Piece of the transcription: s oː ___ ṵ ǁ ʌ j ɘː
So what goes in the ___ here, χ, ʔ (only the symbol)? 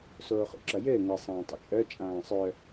χ